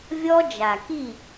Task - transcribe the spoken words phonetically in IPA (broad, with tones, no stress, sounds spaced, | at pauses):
vʲ ɔ˦ d͡ʒ a˨ k i˦˨